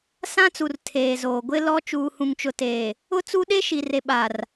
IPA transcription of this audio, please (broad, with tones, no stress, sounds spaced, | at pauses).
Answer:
s ã˦ t͡s u˨ r tʰ eː˨ z oː˨ ɡʷ ɪ˦ l ɔ˦ t͡ʃ uː˨ h ũ˨ ŋ t͡ʃ ʊ˨ t eː˨ | ʊ˦ t͡s u˦ ɗ e˦ ʃ i˨ r e˨ ɓ a˨ r